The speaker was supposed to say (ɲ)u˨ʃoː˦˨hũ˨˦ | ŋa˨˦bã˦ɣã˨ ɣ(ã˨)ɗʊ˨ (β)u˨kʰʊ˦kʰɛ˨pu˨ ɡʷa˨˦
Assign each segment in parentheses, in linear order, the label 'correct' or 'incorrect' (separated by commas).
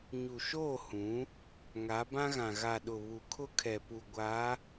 correct, incorrect, correct